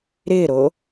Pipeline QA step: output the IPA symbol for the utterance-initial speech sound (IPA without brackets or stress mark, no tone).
ɾ